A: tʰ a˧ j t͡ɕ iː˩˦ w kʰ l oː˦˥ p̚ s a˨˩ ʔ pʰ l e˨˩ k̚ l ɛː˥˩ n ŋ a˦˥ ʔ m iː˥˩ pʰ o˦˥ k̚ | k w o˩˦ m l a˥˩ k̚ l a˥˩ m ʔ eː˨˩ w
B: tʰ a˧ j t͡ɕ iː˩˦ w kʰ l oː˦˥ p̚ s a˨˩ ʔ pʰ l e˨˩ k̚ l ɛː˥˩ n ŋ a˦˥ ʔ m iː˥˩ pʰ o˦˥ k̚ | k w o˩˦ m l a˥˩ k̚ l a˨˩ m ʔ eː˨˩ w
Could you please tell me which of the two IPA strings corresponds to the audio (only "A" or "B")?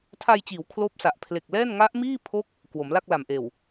B